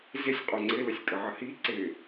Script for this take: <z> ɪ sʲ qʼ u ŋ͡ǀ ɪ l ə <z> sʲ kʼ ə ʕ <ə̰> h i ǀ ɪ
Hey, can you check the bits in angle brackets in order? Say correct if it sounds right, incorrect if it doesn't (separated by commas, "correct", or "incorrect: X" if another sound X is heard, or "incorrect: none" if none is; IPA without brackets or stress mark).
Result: correct, incorrect: none, incorrect: ə